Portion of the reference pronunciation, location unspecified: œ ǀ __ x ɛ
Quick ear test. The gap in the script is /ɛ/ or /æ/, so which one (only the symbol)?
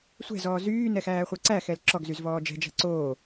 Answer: æ